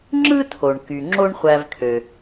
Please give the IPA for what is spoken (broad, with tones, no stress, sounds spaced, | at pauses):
ŋ͡ǁ ɯ˥ tʰ o˩ ɳ k y˩ ŋ͡ǁ o˥ ɳ χʷ æ˧ v kʰ ø˩